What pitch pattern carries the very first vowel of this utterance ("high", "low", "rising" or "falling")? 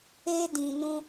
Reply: high